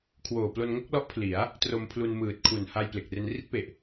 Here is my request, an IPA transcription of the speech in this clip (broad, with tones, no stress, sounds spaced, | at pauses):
kʰ w oː˨˩ p l o˧ n ŋ o˥˩ k̚ l ɔ˦˥ ʔ pʰ l i˩˦ a̯ | t r o˧ m pʰ l u˧ n m ɯː˨˩ t̚ kʰ u˨˩ n h a˧ j p l e˨˩ k̚ r e˧ n r i˥˩ t̚ p e˨˩ ʔ